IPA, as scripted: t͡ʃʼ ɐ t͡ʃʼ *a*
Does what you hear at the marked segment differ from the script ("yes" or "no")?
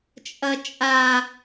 no